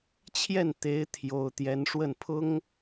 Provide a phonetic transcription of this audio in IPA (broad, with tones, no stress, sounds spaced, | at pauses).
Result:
t͡ɕʰ j ɛ˥˩ n t̪ e˧˥ ɪ̯ t̪ʰ j o˥ ʊ̯ t̪ j ɛ˥ n ʂ w ə˥˩ n pʰ ʊ˥ ŋ